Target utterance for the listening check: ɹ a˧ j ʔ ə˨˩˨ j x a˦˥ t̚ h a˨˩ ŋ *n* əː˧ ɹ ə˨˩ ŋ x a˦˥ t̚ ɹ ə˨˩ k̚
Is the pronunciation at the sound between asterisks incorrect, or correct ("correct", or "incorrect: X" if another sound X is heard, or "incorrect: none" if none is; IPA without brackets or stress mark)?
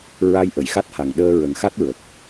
incorrect: ɗ